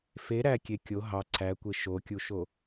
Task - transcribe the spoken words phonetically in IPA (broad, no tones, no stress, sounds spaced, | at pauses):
f e ɾ æ kʲ e kʲ o ɦ ɑ ǀʰ æ kʷ e ʃ o kʲ u ʃ o